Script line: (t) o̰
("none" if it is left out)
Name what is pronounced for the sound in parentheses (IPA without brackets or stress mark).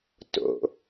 t